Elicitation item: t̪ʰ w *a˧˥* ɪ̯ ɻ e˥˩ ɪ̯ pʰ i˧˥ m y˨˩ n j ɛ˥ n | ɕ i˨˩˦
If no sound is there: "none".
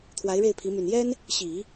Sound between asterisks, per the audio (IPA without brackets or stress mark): a˧˥